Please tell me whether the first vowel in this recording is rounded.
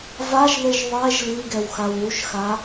no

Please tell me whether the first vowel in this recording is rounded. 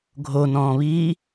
yes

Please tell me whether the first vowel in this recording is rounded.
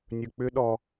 yes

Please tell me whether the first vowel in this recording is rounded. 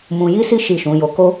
yes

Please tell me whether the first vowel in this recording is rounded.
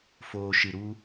yes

